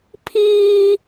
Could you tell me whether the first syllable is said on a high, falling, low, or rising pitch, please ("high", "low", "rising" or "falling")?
high